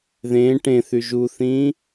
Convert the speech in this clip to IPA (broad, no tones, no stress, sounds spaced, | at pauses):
ð ẽ ʈ ẽ θ y ʒ u θ ĩː